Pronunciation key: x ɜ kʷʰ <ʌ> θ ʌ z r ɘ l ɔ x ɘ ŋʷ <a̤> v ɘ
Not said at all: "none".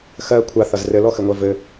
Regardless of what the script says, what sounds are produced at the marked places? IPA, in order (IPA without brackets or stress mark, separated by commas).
a, a